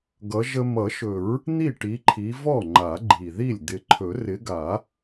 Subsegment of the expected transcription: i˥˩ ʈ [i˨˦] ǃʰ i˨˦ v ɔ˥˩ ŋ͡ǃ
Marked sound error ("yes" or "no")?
no